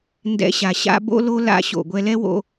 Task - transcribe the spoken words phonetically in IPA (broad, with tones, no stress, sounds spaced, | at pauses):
n d ɛ̰˧ ɕ a˩ ɕ a̰˥ b o̰˥ l o˥ l a̰˧ ɕ o̰˩ ɡʷ ɛ˧ l ɛ˥ w o̰˧